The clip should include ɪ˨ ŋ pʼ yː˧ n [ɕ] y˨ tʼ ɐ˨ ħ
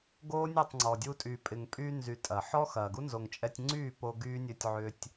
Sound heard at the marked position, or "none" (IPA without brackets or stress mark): z